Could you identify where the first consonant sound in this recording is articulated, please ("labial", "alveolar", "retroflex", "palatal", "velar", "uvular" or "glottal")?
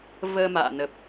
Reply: labial